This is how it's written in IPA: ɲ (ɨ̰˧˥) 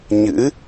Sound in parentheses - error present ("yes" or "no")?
no